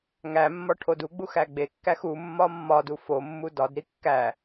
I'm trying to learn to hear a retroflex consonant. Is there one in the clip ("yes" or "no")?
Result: yes